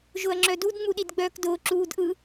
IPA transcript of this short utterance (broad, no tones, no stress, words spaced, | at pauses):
ʒʊɐ̯ŋ͡ǁœdud ŋ͡muɗidɡ͡bœːkdʊː ǁuːdʔɯ